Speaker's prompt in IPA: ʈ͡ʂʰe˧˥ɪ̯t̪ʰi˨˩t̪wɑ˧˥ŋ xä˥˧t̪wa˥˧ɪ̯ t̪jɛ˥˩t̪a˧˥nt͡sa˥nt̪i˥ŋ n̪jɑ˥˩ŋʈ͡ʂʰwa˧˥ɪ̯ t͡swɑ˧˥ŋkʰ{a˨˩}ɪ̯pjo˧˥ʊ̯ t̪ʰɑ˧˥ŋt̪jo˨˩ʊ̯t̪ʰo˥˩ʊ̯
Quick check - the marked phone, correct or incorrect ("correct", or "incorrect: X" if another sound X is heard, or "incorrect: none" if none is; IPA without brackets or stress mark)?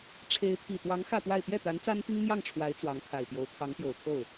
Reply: correct